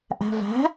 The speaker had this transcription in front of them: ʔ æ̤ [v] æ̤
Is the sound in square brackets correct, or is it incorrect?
correct